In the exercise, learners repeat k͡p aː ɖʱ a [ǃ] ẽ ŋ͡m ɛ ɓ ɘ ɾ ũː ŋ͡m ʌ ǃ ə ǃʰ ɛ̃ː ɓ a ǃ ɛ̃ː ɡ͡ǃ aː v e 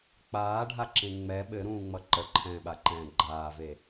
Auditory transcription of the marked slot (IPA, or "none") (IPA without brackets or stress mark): ǁ